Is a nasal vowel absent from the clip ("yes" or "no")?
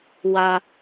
yes